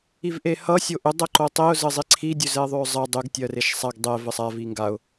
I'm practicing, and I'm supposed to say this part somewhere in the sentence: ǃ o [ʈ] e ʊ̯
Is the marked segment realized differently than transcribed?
yes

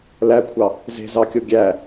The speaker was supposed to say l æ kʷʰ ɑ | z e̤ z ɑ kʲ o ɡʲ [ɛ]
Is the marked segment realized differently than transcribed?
yes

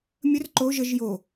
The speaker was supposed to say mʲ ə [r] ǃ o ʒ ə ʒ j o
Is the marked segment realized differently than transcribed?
no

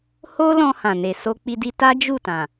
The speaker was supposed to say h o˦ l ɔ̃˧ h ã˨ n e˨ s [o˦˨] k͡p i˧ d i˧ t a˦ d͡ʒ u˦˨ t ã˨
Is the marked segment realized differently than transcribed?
yes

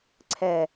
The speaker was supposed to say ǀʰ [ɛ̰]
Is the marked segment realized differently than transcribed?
yes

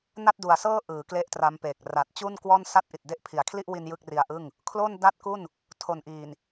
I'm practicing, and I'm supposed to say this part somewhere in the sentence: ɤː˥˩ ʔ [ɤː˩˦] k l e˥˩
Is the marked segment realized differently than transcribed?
yes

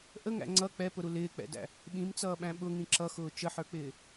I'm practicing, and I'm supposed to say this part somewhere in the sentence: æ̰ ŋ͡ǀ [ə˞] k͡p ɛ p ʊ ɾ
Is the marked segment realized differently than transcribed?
yes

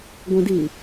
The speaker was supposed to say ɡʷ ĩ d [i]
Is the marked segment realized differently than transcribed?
no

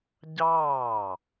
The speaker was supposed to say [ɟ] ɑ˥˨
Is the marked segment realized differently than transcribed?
no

